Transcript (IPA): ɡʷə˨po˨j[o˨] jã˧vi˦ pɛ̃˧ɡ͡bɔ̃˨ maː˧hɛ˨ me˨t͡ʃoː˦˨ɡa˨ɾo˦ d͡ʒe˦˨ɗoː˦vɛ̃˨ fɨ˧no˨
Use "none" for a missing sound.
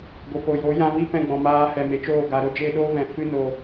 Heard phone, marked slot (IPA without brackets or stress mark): o˨˦